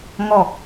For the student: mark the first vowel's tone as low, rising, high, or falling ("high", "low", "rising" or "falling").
low